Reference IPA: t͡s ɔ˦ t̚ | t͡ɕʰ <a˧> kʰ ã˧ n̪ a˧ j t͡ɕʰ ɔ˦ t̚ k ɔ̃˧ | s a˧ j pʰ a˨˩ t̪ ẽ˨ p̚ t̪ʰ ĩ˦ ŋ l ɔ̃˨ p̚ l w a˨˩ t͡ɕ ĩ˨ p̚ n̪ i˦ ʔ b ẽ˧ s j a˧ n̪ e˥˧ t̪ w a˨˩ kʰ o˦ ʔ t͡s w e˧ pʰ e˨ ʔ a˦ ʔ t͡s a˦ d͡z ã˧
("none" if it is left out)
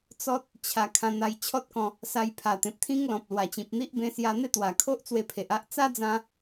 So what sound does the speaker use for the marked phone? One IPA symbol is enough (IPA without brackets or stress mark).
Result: a˧